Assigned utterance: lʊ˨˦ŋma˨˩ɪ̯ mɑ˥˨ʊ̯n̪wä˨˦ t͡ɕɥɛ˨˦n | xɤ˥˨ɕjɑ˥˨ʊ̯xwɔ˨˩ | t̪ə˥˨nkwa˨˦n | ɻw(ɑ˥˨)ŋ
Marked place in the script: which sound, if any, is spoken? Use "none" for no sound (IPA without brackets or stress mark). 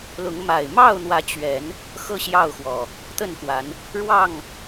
ɑ˥˨